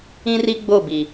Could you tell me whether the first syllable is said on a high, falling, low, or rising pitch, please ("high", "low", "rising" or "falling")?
high